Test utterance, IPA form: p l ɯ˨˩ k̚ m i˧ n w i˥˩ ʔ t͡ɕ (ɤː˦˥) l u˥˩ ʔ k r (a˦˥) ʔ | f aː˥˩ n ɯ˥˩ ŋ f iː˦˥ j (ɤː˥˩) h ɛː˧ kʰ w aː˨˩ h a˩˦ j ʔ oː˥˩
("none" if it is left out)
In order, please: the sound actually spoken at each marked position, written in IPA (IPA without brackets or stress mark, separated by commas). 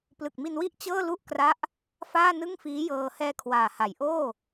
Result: ɤː˥˩, a˦˥, ɤː˧